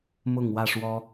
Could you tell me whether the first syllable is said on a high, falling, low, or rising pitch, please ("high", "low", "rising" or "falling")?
falling